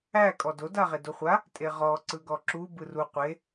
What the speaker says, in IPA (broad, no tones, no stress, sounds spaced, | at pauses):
æ kʼ ɔ d o d a ʁ e d o χʷ a | tʼ e ʁ ɔ ǀ ɯ ɡ ɔ ǁ u b ɯ r u qʷ e